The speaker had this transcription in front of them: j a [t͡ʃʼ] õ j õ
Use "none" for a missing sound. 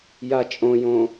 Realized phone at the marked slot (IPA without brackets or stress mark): t͡ʃʼ